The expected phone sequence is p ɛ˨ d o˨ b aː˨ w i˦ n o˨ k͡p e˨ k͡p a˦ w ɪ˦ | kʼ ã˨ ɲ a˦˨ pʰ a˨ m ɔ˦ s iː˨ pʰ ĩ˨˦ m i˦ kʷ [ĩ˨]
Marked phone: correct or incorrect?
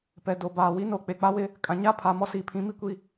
incorrect